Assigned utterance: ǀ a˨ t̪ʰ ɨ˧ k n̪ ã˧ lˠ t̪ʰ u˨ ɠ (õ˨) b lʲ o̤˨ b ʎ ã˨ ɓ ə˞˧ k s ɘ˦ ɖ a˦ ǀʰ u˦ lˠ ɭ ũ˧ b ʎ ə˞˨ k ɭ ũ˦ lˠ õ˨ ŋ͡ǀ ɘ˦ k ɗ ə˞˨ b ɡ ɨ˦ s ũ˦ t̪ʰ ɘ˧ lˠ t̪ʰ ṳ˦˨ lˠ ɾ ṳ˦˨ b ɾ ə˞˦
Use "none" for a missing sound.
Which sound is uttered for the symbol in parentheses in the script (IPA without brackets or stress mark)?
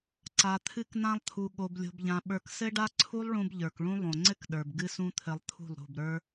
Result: o˨